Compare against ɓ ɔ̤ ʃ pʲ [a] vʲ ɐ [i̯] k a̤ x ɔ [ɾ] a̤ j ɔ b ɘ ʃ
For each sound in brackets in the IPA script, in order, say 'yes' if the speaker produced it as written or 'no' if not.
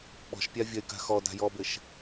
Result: yes, no, no

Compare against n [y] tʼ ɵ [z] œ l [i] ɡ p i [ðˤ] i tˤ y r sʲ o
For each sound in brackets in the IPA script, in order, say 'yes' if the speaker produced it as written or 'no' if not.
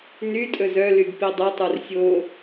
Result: yes, yes, no, no

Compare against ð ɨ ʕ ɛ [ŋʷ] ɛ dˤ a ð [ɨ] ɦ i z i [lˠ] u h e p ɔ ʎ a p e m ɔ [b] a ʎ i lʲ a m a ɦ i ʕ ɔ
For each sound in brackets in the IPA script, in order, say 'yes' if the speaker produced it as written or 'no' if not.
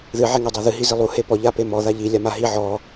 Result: no, yes, yes, no

